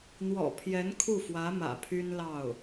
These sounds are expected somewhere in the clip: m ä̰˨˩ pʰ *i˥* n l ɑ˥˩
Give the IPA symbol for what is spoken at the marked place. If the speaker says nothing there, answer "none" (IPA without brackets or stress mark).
y˥